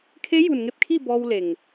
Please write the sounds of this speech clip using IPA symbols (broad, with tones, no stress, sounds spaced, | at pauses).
kʰ e˧˥ j u˩ n ŋ e˥˨ p̚ kʰ i˥˨ b ɔː˧ w l e˩ ŋ